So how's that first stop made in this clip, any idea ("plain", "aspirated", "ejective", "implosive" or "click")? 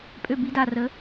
ejective